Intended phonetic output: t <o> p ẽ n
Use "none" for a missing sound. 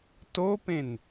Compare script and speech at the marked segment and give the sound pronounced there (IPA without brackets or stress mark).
o